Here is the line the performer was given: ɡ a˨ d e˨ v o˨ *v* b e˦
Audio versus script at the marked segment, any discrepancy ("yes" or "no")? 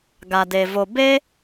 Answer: yes